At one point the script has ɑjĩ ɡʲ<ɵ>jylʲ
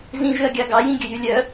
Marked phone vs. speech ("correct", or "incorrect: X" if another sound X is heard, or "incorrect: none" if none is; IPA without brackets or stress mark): correct